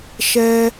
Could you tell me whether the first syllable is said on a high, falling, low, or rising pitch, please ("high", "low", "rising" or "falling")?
high